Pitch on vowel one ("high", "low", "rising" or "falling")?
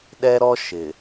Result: high